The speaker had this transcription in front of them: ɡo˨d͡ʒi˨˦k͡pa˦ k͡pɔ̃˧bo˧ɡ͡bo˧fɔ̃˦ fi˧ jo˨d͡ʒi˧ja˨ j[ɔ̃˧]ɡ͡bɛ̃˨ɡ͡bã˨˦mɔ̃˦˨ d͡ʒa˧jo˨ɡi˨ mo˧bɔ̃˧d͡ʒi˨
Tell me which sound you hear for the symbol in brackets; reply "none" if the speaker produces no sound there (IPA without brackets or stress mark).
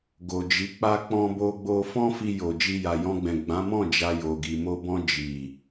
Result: ɔ̃˧